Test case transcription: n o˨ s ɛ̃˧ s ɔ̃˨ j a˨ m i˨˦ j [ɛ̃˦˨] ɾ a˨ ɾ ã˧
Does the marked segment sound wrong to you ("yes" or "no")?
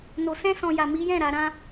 no